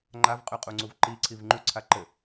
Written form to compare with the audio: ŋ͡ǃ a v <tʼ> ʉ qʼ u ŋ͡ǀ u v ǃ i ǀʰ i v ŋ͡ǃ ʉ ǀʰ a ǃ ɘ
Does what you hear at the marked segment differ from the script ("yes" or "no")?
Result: yes